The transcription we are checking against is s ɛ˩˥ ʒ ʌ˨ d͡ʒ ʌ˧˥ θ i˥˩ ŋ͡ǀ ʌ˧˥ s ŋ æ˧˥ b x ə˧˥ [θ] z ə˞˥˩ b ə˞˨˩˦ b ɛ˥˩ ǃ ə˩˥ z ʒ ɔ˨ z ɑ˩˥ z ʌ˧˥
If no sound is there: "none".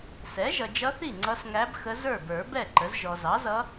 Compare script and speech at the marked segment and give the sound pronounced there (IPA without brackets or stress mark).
none